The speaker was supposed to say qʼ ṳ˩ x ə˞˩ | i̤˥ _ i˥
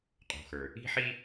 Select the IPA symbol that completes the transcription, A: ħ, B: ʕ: A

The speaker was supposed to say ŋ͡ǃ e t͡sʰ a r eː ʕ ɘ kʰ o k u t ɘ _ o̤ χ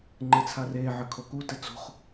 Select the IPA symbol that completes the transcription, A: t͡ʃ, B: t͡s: B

